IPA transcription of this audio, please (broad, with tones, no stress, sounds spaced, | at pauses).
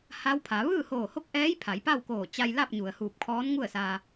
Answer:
h a˧˥ w pʰ a˩˧ ʋ ɯː˥˨ h oː˧˩ h o˥˨ k̚ ʔ ɛː˧˥ j pʰ a˩˧ j p a˥˨ w k oː˧˩ t͡ɕ a˧ j l a˥˨ p̚ ɲ u˩ ə̯ h uː˧˩ p̚ kʰ ɔː˧˥ n ŋ u˥˨ ə̯ s aː˧